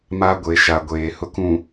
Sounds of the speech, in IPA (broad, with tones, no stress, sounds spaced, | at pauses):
m a˨ ɡʷ e˨ ʃ a˨ ɡʷ eː˨ h ʊ˨ k ũ˨